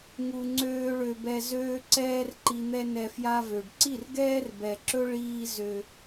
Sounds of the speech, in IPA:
ŋ u˧ ŋ͡ǀ øː˦ ɭ ø˧ b ɛ˧ z øː˦ ǀ ɛː˦ r ǃ i˧ n̪ ɛ˦ n ɛ˧ f j a˦ v ø˨ ɖ ǀ i˦˨ r ɡ ɛː˦ r b ɛ˨ ǁ ɵ˦ ɭ iː˦ z ø˧

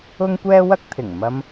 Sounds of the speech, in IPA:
ʊ˥ ŋ kʷ ɛː˥ w ɐ˥ k̚ t̪ʰ ɪ˨˩ ŋ m ɐ˧ m

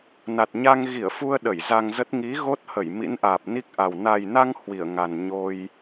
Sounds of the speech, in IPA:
n a˨˩ t̚ ɲ a˧ ŋ ɣ i˧˩ ə̯ f u˧ ə̯ ɗ ə˧˩ j z a˧ ŋ z ə˦˥ t̚ ŋ i˨˦ ɣ o˦˥ t̚ h ə˧˩ j m ḭ˧˥ n ʔ aː˨˩ p̚ n i˦˥ k̚ ʔ a˨˩ w n a˨˩ j n a˧ ŋ h w i˧˩ ə̯ ŋ a˨˩ n ɲ o˧ j

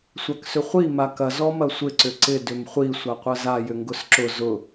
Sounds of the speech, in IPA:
sʷ a k s ʏ χʷ i m a k ɐ z ɔ m ɐ sʷ ɪ ǀ ʏ ǀ ɪ d ʏ m χʷ i sʷ a qʷ ɐ z a j ʏ ŋ ɡ ʊ s ǁ ʊ z ʊ

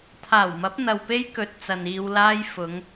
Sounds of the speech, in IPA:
t̪ʰ aː˨˩ w m ɐ˨˥ p̚ n̪ ɐ˨ w p e˥ j k ɵ˨ t̚ t͡s ɐ˨ n iː˧ w l aː˥ j f ʊ˨˧ ŋ

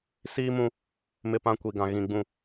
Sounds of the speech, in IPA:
s iː˦ m ũ˦ | m ɪ˦˨ p ã˦ kʷ i˨ ɡ ã˨ ɣ ĩ˨ ɡ͡b ũ˨

